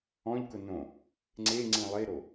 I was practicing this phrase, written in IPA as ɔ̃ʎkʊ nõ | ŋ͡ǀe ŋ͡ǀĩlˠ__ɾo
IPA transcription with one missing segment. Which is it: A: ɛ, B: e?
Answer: B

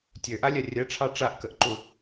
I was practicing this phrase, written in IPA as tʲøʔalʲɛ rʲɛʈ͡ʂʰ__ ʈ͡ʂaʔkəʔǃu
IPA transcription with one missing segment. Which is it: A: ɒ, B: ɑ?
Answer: B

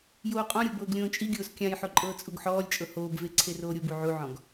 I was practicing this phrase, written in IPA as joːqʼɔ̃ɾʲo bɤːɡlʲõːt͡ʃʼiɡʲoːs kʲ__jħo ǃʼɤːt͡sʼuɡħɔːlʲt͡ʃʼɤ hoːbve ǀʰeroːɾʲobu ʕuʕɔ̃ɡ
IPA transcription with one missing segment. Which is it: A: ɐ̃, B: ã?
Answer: B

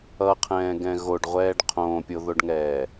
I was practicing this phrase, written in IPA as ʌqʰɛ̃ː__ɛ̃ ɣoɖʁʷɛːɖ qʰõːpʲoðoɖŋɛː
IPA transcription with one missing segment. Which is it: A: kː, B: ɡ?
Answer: B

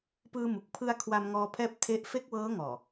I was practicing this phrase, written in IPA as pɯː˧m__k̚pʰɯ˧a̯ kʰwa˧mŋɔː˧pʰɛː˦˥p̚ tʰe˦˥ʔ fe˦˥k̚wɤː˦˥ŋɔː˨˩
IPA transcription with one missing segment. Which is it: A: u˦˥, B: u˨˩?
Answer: B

